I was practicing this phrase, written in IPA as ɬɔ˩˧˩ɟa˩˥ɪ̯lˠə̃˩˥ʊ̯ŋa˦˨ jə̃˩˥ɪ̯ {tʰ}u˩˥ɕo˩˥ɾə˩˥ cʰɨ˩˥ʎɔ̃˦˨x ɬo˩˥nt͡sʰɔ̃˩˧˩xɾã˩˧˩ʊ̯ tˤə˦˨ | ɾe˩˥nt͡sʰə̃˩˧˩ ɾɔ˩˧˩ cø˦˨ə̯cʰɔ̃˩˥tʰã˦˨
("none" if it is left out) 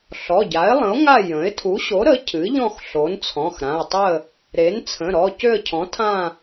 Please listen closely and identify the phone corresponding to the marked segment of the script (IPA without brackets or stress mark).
tʰ